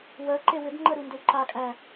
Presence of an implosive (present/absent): absent